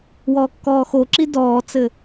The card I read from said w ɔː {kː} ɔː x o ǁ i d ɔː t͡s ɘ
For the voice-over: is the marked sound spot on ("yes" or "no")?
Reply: yes